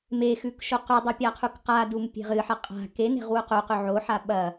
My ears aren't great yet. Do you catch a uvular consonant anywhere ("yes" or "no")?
yes